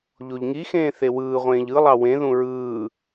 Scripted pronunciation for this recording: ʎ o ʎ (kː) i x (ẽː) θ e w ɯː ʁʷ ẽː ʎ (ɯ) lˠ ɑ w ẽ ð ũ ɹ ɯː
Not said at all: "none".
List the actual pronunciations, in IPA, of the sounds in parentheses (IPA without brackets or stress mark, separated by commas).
ŋ, ẽː, ɯ